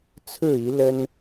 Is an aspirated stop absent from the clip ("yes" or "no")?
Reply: no